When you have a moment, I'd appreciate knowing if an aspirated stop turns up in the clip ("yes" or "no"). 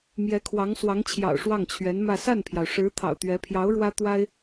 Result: yes